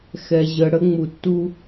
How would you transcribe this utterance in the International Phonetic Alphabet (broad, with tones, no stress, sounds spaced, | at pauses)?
x ɛ˨ ʑ ə˨ ɽ ə˦ ŋ͡m u˨ tː u˦